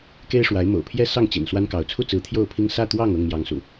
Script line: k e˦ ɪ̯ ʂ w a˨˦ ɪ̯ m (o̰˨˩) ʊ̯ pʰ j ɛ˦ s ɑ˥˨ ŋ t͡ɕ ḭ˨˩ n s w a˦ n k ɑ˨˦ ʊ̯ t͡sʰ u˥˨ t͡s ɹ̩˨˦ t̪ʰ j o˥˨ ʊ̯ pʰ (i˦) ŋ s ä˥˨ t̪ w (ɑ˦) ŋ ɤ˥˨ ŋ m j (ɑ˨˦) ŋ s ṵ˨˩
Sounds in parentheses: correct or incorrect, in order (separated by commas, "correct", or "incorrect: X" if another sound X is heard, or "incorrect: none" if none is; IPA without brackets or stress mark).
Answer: correct, correct, incorrect: ɑ˥˨, correct